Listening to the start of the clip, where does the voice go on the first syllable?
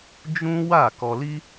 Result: high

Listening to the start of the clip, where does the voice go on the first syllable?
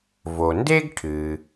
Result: low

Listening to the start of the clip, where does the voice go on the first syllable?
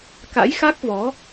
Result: rising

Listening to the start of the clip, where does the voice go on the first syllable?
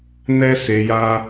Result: high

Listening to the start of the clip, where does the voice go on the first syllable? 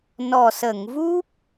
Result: low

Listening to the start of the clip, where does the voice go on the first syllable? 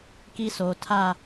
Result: high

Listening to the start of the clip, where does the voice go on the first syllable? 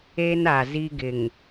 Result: high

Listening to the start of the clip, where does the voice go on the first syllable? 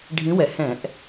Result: rising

